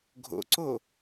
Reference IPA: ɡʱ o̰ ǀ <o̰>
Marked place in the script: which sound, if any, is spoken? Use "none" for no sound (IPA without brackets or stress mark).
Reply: o